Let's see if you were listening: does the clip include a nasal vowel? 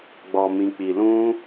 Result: yes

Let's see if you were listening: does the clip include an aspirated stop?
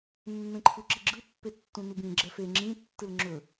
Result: yes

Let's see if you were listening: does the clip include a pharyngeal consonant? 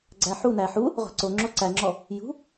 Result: yes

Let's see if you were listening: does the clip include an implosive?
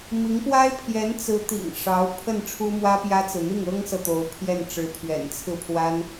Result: no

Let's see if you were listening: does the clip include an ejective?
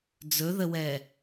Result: no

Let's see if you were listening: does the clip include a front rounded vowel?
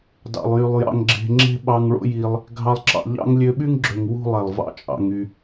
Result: yes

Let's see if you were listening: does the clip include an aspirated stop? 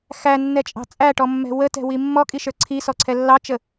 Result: yes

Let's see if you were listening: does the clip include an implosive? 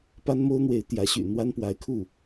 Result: no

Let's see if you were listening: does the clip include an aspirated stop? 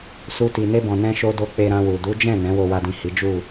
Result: no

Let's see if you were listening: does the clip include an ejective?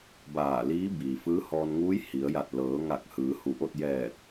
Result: no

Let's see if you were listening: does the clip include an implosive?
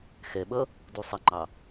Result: yes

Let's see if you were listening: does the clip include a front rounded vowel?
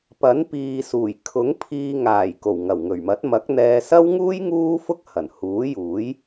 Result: no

